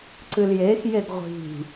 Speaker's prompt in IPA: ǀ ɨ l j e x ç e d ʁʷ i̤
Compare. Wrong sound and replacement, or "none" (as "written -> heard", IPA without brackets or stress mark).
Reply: ç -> j